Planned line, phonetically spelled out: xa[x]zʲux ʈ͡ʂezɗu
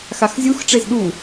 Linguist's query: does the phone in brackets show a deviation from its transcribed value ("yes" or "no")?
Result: no